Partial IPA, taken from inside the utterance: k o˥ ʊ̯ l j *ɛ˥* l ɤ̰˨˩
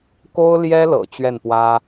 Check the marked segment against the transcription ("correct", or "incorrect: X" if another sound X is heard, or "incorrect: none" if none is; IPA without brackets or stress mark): correct